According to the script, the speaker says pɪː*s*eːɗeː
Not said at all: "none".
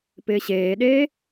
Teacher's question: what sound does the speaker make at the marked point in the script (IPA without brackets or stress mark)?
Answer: ɕ